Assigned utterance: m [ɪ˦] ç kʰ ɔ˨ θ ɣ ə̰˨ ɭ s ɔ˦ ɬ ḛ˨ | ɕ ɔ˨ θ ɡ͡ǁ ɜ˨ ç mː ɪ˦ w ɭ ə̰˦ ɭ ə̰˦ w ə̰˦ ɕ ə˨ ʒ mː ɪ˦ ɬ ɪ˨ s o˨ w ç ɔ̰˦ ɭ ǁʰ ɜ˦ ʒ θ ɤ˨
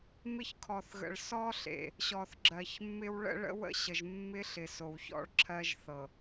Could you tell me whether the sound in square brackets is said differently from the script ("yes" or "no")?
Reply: no